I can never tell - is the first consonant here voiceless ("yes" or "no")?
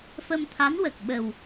yes